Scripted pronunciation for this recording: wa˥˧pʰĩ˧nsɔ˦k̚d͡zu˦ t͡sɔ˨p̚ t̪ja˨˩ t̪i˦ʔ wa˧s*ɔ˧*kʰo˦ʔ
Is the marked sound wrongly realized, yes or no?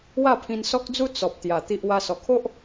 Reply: yes